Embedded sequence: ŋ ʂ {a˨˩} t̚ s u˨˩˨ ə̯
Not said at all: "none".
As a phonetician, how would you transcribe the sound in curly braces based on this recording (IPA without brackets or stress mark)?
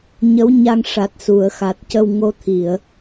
a˨˩